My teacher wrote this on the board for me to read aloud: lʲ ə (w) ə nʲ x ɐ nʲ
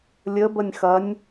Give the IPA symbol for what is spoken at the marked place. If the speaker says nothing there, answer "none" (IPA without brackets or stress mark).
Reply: b